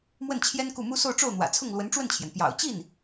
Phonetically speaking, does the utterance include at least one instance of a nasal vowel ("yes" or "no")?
no